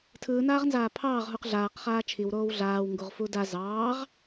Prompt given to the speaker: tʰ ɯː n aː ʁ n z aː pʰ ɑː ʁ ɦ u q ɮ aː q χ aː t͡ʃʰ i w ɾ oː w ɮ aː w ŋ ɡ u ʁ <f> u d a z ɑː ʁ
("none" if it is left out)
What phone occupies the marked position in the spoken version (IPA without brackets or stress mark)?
f